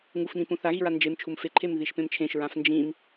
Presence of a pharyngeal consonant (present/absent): absent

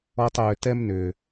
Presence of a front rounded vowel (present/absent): present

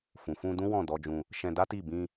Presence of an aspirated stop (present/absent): absent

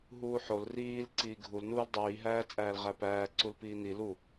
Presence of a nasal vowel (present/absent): absent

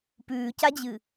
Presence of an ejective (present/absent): absent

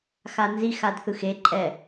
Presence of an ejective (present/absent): present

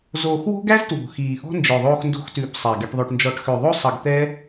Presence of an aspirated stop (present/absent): absent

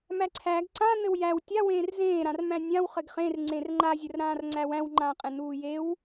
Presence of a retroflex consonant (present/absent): absent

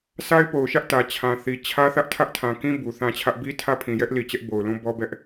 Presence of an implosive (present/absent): absent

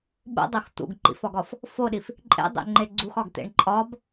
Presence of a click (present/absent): present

